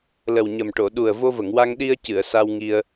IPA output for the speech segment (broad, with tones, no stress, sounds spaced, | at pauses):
l ə˨˩ w ɲ ə˨˩ m ʈ o˨˩˨ ɗ u˨˩ ə̯ v o˧ v ə˨˩˨ ŋ w a˧ ŋ ɗ i˧ ə̯ c ɨ˨˩˨ ə̯ s a˧ w ŋ i˧ ə̯